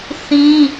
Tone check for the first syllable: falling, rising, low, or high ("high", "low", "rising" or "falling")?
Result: high